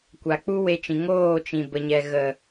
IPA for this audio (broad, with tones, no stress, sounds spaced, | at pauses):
kʷ a˨ k͡p u˦ w e˧ t͡ʃ ĩ˨ ŋ oː˦˨ t͡ʃ ĩ˨ b ə˨ ɲ ɛ˨ ɣ ə˨